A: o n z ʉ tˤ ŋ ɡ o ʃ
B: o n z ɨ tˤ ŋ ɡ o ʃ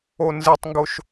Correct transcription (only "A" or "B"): B